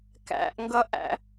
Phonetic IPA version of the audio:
kæ̰ʔŋɡʌʔæ̰

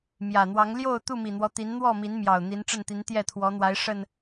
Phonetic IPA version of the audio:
mjä˨˩n̪wɑ˨˦ŋ ljo˥˨ʊ̯ t̪u˥˨mi˨˩n̪wɔ˦ t̪i˨˦nn̪wɔ˥˨mi˨˦nmjɑ˨˩ʊ̯ n̪i˨˦n ʈ͡ʂə˥˨nt̪i˨˦n t̪jɛ˥˨t̪ʰwɔ˨˦n̪wa˨˦ɪ̯ ʂə˨˩n

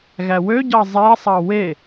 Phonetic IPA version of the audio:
ɣæwøɟɑ zˤesˤɑ we

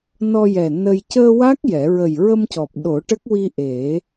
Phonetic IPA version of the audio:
nɔ˧jɛ˨˩ nə˧j cəː˧wa˦˥k̚ jɛ˨˩˦ ɹə˨˩jɹə˧mcɔ˨˩p̚ ɗo˨˩˦ʈə˦˥k̚wi˧ ʔe˨˩˦

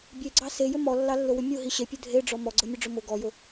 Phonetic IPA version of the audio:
bʲeɡ͡ǀɑ sejʏ mɔlːɑlːʊwʏ mʲʊɦi ɕepʲʊ dʱeɖ͡ʐɔ mɔɡ͡ǀɤmʲʊɖ͡ʐʊ mʊ ɡɔjʊ

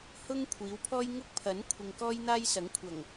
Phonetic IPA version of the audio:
hʊ˥ŋ kʷʰiː˨˥wpʰɔː˥j ŋʊ˥k̚pʰɐ˨˥n kʷʰɪ˨ŋkɔː˥jn̪aː˥j sɐ˨˥ŋkʷʰɐ˨˩ŋ

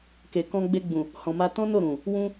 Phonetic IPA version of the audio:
ke˨kɔ̃˧ɡ͡be˧ɡ͡bũ˨ | hɔ̃˨ma˧ tɔ̃˦no˦˨ ɾũ˨ | wũ˧

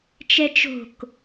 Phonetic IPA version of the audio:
t͡ʃɛt͡ʃo̤k

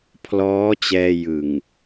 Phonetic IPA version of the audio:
pʰlɔː˦˥t͡ɕɛː˧jɯ˨˩ŋ

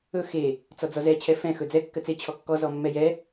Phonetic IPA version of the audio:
ɵ xe | t͡sɔd͡zɔzɛ t͡ɕʰɛfɛ̃ xɵd͡zɛ kːɜt͡se t͡ɕʰɔkːɔ zɔmːɛjɛ

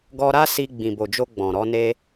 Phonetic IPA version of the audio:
ɡɔ˧ɾa˦si˧ ɡ͡bĩ˨bo˨d͡ʒo˧ ɡ͡bɔ̃˨ɾɔ˨˦ne˦

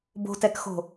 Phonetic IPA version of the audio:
bo̤tɛkxo̤

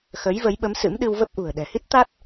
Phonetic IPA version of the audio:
xə˨˦j və˨˦jɓə˨˦msɨ̰˧˥m ɗɨ˧wvə˦˥p̚ ʔṳ˨˩ə̯ ɗɛ̤˨˩hi˦˥t̚ t̪a˦˥t̚

